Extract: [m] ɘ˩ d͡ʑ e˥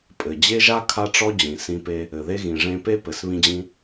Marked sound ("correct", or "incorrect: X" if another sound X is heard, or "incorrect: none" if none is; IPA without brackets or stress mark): incorrect: pʼ